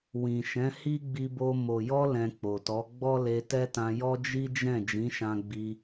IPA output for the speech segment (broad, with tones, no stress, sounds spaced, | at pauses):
w ĩ˨ ʃ ɛ̃˨˦ h i˦ ɡ͡b i˧ b o˧ m o˨ j ɔ˧ l ɛ̃˧ k͡p o˨ t ɔ˨˦ ɡ͡b ɔ˦ l e˧ t ɛ˦ t ã˧ j ɔ˦ d͡ʒ i˦ d͡ʒ ɛ̃˦˨ d͡ʒ ĩ˨˦ ʃ ã˧ ɡ͡b i˧